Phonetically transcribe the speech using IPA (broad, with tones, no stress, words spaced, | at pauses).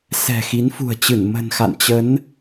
sɛ̤˨˩xi˨˦nfṳ˨˩ə̯t͡ɕɨ˧˩n mə̤˨˩nxa̰˧˨nt͡ɕə˨˦n